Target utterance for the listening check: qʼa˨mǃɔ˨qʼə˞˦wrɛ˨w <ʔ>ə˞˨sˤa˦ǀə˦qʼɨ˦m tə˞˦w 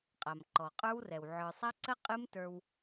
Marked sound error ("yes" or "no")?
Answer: yes